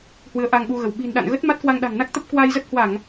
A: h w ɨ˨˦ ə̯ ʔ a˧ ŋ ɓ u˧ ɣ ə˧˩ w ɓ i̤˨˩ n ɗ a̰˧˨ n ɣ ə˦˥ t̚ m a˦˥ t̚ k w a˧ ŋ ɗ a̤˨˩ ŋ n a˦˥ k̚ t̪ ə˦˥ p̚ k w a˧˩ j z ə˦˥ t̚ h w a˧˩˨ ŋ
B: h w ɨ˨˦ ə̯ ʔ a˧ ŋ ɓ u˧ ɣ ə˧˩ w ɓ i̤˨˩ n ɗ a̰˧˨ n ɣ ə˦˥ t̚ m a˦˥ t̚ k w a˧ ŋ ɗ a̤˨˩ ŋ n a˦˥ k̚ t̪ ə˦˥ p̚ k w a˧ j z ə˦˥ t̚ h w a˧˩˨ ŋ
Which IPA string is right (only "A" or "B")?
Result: B